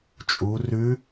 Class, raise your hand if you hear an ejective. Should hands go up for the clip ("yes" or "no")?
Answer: yes